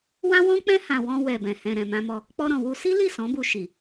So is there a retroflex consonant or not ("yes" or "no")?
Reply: no